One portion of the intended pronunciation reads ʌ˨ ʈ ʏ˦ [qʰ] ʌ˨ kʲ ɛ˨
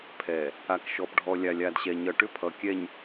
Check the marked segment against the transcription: incorrect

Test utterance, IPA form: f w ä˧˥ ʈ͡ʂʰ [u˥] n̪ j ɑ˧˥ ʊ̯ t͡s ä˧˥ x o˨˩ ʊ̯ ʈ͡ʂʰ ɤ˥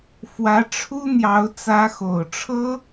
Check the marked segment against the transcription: correct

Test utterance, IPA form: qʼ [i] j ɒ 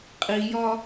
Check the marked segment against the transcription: correct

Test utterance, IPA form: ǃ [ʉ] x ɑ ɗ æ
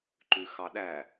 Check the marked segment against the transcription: correct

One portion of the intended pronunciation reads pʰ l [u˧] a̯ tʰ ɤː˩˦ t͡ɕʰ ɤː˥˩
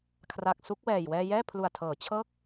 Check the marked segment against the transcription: incorrect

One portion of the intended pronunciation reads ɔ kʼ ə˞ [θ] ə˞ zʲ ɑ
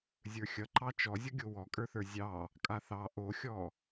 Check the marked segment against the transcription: correct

